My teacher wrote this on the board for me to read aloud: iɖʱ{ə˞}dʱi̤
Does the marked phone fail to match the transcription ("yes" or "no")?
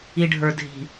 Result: no